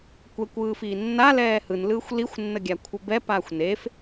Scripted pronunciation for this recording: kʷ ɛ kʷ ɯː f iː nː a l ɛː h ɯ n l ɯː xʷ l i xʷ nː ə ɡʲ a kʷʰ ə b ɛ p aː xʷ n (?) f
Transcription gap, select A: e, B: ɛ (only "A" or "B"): A